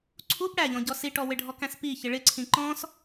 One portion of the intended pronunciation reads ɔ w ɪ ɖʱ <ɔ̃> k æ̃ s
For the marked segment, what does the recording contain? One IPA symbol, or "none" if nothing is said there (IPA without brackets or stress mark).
ɔ